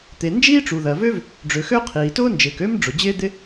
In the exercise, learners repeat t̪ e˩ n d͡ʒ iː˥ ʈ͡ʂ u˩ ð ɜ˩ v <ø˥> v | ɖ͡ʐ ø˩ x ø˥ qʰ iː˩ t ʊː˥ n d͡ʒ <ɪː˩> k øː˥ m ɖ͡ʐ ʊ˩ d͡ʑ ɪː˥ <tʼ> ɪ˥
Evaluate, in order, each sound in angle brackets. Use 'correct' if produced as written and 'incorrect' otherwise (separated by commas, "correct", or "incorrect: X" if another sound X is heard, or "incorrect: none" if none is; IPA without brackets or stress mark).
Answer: correct, correct, incorrect: d̪